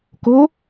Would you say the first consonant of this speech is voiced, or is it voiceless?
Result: voiceless